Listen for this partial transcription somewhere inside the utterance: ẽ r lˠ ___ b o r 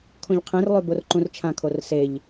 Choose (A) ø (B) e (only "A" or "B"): A